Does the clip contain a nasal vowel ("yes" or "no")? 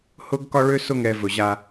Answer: no